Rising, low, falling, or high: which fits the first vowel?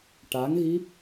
rising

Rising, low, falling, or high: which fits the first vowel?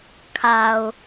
low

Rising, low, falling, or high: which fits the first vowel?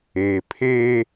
low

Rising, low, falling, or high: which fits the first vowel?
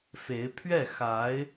rising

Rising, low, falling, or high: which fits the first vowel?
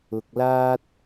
low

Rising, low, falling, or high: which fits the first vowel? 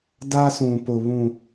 high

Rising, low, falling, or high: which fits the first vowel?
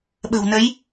low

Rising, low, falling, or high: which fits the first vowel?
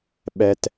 low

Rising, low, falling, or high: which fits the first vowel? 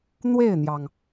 falling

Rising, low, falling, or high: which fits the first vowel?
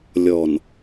low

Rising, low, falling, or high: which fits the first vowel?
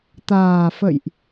low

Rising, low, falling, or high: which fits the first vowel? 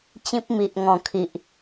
high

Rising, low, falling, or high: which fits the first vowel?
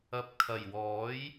low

